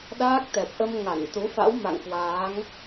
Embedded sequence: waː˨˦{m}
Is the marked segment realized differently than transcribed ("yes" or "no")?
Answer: yes